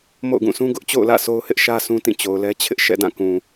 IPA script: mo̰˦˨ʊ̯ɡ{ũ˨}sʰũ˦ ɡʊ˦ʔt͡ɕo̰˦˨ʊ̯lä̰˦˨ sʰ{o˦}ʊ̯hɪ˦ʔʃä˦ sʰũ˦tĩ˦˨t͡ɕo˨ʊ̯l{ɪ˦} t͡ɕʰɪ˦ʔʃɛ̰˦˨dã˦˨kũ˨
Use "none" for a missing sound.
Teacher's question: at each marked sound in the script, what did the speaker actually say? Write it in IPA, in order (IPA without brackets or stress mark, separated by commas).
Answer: ũ˦˨, o˦, ɛ˦